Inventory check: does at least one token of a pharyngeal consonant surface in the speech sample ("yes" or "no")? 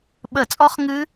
no